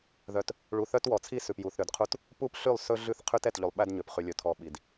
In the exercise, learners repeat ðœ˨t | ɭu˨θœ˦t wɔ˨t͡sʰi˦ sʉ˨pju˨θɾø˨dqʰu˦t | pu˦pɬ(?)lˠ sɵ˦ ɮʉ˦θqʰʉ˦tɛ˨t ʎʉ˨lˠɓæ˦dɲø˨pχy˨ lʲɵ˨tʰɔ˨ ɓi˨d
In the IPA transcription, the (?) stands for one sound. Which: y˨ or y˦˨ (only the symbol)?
y˦˨